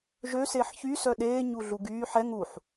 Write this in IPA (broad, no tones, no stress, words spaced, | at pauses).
ʒøseːħ çysœ ɗeːɲuɮu ɡyː ħɛ ŋuħ